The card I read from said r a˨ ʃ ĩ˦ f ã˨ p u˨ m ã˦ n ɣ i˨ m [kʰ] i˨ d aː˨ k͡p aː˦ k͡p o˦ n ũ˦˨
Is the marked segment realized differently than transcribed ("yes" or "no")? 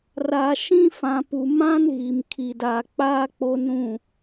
no